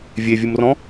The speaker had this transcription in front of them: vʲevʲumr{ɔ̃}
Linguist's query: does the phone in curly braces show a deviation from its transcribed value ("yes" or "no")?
no